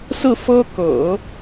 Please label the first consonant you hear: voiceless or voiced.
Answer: voiceless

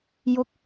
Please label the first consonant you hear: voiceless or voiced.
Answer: voiced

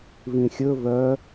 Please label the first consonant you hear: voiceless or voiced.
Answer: voiced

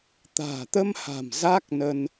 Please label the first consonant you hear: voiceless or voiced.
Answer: voiceless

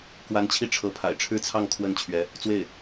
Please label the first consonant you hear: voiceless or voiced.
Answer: voiceless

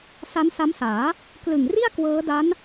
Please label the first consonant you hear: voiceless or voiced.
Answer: voiceless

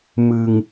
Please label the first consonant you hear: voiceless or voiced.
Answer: voiced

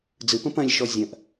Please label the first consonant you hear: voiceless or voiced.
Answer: voiced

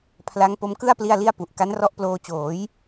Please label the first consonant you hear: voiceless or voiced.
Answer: voiceless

